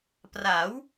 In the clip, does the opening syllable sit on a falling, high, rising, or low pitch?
rising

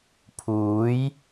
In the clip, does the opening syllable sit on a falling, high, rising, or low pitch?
rising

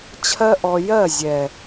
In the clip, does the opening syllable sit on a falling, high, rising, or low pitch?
high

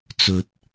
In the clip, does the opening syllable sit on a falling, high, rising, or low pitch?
low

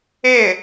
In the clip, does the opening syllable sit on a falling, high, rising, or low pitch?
falling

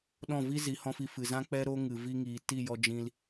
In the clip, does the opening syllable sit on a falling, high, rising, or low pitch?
falling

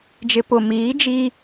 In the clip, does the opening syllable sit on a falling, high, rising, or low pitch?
low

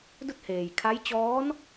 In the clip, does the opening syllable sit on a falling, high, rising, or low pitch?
falling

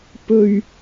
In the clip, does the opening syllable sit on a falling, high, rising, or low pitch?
low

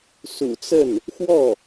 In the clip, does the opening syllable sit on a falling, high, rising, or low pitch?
low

